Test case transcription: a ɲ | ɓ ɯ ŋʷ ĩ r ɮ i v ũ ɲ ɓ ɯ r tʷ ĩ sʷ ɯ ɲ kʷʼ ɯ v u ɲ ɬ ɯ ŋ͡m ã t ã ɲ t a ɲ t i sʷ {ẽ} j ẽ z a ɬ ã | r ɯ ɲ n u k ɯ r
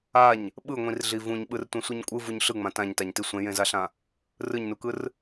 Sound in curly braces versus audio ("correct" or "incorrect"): correct